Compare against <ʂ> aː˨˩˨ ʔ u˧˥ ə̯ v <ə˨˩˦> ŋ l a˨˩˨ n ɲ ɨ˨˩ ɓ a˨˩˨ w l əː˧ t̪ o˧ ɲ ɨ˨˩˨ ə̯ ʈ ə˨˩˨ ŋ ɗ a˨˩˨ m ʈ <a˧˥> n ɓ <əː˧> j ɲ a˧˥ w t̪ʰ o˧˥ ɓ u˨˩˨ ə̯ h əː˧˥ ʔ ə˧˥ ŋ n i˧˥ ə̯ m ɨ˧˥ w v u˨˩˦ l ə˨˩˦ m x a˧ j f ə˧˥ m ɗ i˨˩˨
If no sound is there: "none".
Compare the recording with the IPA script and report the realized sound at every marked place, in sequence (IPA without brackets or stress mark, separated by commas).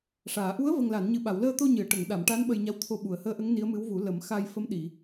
ʂ, ə˨˩, a˧˥, ə˧